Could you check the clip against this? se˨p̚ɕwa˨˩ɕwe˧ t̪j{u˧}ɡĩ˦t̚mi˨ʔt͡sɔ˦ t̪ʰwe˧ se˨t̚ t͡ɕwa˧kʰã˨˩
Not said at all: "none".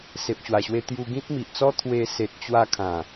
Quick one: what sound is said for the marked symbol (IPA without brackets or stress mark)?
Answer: u˧